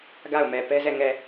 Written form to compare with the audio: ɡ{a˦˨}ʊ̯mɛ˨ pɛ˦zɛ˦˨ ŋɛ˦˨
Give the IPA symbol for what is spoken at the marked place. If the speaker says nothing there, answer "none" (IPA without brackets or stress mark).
a˦˨